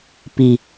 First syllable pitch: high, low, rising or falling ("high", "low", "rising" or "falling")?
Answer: low